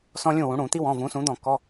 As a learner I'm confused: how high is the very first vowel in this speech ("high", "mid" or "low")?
mid